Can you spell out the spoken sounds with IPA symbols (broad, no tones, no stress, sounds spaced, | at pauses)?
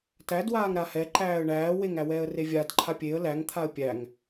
t æ d w aː ŋ ɾ a h ɛ ǃ æː ə̯ ɳ æː w e ŋ æ w ɛː ə̯ r e vʲ a d ǃʰ a pʲ e ə̯ l æ ŋ t̪ʰ a ə̯ pʲ æ ŋ